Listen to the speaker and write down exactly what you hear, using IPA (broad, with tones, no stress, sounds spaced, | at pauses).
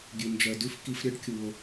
ɡʲ ʉ˩ n d͡ʒ ɜ˩ d ʉ˧ f k i˧ f ɾʲ ɜ˥ ɖ kʲ u˩ o̯